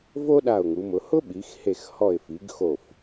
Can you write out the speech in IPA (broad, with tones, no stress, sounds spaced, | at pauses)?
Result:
v o˥ ɗ a˧˩ ʊ̯ ŋ u˩˧ m ʊ˩˧ h ʊ˥ ɓ i˩˧ x h e˧˩ x h ɔ˧˩ ɪ̯ f i˩˧ ɡ x o˧˩ f